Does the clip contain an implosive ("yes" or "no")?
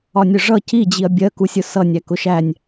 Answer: no